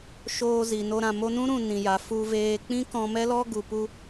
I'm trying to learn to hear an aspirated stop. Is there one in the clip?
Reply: no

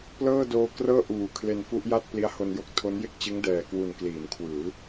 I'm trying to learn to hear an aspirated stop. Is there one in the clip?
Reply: yes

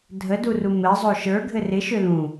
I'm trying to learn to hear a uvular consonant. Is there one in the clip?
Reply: no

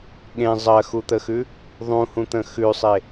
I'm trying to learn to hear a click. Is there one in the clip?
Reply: no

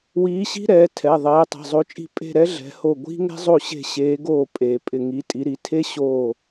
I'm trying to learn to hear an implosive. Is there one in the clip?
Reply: no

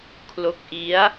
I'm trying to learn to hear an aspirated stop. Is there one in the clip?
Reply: yes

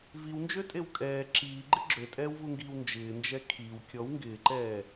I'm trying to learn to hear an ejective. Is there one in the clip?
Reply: yes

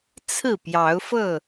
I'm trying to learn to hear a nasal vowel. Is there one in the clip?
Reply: no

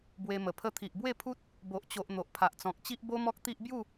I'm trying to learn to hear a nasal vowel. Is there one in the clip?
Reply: yes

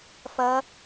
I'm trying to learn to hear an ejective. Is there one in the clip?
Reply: no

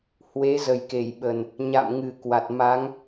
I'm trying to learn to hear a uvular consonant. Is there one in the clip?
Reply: no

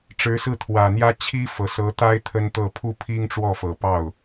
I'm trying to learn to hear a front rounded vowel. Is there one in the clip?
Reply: no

